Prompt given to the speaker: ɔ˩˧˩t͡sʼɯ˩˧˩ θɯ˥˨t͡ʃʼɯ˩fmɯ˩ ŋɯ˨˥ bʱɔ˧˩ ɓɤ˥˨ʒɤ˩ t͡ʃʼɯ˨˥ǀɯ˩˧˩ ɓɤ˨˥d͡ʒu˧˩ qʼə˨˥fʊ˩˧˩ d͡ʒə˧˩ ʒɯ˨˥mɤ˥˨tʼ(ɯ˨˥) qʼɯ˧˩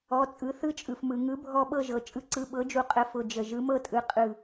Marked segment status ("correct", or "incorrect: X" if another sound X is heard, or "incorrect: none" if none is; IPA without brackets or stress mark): correct